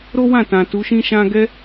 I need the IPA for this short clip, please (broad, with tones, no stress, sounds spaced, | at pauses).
ɾ o˦ w ã˦˨ t ã˨ t u˨˦ ʃ ĩ˦ ʃ ã˦ ɡ ɛ˦